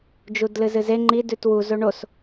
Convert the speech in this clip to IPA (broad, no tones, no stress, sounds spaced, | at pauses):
d͡ʒ u d l ɨ z ɨ z e ŋ͡ǃ i d ʉ t w u z o ɳ o s